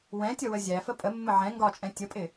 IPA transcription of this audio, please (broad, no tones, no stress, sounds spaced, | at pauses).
w ɛ̃ tʲ ʌ w ə zʲ æ f ə pʼ ə mː ə ʕ ɛ̃ ŋ ɡ ɒ t͡ʃʼ ɛ̃ tʲ ə pʼ ɪ